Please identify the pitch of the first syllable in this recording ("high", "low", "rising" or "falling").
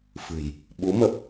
low